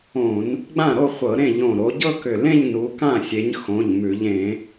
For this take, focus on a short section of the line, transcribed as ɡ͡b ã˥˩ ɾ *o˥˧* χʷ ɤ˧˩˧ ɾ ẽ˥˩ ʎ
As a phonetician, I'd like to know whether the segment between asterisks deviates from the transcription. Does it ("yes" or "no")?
no